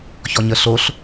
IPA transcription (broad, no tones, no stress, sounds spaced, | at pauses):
ç ɔ ɲ ə ɬ o ɬ